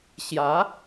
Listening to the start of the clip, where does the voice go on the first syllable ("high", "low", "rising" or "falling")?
rising